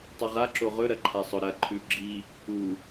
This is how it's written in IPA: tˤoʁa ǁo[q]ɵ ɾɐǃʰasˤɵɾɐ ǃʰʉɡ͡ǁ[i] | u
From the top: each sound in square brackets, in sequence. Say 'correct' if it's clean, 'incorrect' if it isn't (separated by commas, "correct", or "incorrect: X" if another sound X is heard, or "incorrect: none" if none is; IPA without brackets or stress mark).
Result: incorrect: ʁ, correct